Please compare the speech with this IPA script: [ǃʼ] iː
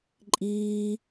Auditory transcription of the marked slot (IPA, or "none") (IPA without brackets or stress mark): ǃʼ